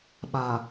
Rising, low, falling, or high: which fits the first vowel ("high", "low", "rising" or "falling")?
low